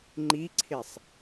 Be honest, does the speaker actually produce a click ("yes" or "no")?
yes